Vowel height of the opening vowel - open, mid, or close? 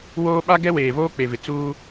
mid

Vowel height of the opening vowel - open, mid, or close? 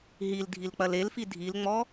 close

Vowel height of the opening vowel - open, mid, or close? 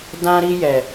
open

